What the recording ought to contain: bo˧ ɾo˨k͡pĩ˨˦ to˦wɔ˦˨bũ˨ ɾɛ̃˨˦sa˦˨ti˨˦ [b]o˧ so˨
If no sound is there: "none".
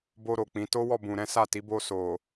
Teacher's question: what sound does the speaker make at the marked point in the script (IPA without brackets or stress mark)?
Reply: b